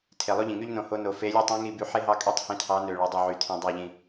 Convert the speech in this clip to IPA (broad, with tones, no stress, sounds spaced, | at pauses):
tʰ e˨ lˠ o˥ ʎ ĩ˨ ŋ y˥ ʎ n õ˦˨ h o˥ n o˦˨ f e˧˥ lʲ e˥ tˤ ĩ˧˥ ŋ i˦˨ b y˦˨ ħ e˥ ɦ ɑ˥ kʼ y˥ tˤ h ĩ˦˨ tʰ ɑ˧˥ n ø˨ ɭ o˨ dˤ ø˦˨ ʕ y˨ tʰ ĩ˨ dˤ ɑ˦˨ ʎ ĩ˨